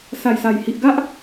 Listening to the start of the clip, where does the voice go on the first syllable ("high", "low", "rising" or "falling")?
low